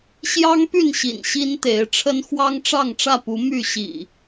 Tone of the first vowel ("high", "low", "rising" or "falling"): high